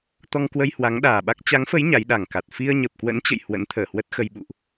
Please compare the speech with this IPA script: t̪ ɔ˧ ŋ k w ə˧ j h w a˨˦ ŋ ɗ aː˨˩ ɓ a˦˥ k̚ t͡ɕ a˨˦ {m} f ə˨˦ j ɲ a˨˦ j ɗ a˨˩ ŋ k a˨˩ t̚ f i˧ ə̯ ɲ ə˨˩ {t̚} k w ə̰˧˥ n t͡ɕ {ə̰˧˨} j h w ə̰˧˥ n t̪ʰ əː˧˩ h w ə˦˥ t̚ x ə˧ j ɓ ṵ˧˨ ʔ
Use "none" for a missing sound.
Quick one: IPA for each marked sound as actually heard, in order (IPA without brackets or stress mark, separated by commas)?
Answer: ŋ, p̚, ə̰˧˨